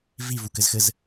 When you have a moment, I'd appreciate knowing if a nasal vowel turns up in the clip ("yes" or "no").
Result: no